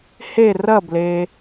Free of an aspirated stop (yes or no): yes